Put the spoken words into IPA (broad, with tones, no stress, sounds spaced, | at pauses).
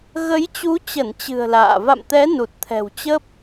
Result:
ɣ ə˨˦ j t͡ɕ u˨˦ t͡ɕ ə˧˩ n t͡ɕ ɨ̤˨˩ ə̯ l a̰ː˧˨ v a̰˧˨ m t̪ ɛ˨˦ n u˨˩ t̚ t̪ʰ ɛ̤˨˩ w t͡ɕ ə˦˥ p̚